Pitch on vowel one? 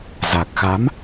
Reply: low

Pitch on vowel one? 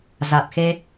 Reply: low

